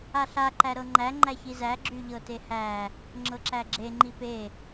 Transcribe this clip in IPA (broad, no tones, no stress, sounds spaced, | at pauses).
a ɬ a ǃ æ ɾ ɤ ŋ͡ǃ æ ŋ͡ǃ æ ç i z æ ɡ͡ǁ y ʎ ɤ t e h æ | ŋ͡ǁ ɤ ǁ æ ɡ͡ǁ e ŋ͡ǃ i p e